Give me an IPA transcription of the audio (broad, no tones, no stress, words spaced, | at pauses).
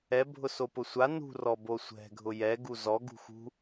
ɛbʱʊ sopʊsʷa nṳrɔ bosʷɛ̤ ɡʱʊjɛ ɡuzɔ ɡṳxṳ